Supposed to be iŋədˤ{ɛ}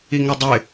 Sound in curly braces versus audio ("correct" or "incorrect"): incorrect